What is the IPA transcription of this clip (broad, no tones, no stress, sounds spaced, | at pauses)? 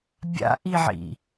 bʲ a̰ ʔ i ʕ ḭ